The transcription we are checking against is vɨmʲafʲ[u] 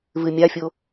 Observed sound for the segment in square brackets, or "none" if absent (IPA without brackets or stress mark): o